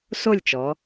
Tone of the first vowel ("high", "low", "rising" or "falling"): falling